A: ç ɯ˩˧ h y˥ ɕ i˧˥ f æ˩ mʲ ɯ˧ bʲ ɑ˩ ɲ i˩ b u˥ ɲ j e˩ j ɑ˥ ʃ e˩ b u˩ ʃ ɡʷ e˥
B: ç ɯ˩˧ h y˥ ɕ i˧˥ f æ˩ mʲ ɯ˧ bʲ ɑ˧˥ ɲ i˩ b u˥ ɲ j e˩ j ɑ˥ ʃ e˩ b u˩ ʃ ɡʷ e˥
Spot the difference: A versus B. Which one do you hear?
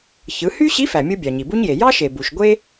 A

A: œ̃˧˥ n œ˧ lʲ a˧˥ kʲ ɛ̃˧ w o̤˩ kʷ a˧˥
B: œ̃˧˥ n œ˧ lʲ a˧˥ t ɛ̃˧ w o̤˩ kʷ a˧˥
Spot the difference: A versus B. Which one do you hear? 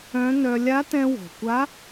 B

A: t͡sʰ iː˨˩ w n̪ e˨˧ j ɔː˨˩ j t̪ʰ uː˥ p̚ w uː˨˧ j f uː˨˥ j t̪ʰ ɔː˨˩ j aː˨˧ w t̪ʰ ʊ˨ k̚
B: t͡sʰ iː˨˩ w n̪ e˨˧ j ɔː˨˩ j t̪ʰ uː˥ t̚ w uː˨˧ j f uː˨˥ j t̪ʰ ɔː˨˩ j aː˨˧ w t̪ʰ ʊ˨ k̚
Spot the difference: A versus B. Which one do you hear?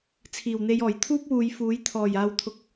A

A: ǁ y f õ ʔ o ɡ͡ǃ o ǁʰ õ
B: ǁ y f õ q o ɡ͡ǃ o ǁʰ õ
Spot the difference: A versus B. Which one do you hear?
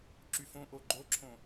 A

